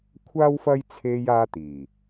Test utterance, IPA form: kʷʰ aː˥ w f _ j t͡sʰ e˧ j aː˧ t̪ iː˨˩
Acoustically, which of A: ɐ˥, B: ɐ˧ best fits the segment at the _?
A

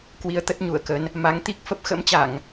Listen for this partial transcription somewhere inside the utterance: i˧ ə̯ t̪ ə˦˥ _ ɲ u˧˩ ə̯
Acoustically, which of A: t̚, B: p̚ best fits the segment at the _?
A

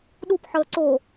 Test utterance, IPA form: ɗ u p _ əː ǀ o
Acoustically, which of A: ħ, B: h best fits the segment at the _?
A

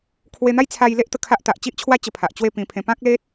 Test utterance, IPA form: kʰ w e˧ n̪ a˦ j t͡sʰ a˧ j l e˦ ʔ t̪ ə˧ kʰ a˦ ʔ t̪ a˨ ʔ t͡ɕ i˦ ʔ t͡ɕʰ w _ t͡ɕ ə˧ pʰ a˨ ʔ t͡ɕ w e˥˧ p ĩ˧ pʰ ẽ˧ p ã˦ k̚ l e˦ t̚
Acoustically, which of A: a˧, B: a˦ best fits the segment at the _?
B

